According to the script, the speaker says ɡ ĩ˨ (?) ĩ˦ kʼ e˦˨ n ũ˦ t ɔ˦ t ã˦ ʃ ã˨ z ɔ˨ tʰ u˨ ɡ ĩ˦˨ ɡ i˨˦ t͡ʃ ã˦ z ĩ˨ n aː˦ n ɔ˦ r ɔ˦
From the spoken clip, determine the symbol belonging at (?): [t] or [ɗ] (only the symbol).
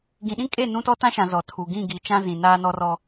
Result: ɗ